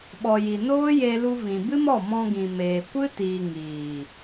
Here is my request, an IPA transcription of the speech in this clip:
ɓ ɔ˨ j i˨ n oː˦ j e˧ l u˧ v ĩ˨ b ɨ˦ m ɔ˦˨ m ɔ̃˧ ɡ ĩ˨ m eː˨ kʷ ɨ˦ t iː˨ ŋ iː˨

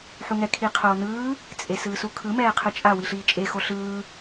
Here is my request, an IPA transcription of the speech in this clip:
ħ u ŋ ɛ kʰ i qʰ oː n ɯː | t͡sʼ e s ɯː s u kʰ ɯ m ɛː qʰ ɯ t͡ʃʼ a w i ɬ iː t͡ʃʼ e x o ɬ ɯː

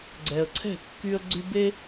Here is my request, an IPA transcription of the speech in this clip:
ɡ͡ǀ ɛ˨ ə̯ ǀʰ ɛ̤˥˨ kː y˦ ə̯ ɡ͡ǀ y˦ b e˦

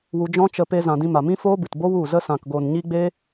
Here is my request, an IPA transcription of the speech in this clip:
w u˧ d͡ʒ ɔ̃˦ t͡ʃ ə˧ p e˧ z ã˨ d ĩ˧ m a˨ m ĩ˦ f oː˦ b ɨ˨ t b o˦ w u˦˨ z ə˦ s ã˨ k ɡ o˨ n ɲ i˦ ɡ͡b e˦

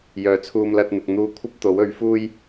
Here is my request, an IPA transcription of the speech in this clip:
j œː˨ t͡sʰ uː˧ m l ɐ˧ t̚ n̪ ɪ˨ k̚ n̪ uː˧ kʷʰ ɐ˥ p̚ t̪ o˨˥ w ɵ˨˥ ɥ f uː˥ j

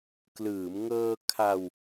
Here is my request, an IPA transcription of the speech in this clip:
k l ɯː˩˦ m ŋ ɤː˧ kʰ a˧ w

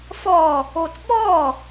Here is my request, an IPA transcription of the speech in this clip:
f ɔ | o t ɓ ɔ

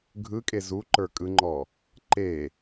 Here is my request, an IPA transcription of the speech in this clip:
ɡʱ ɯ kʼ e z u ǃ ə˞ kʼ ɯ ŋ͡ǃ ɔ | ǃ e

